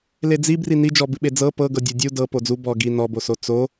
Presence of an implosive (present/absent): present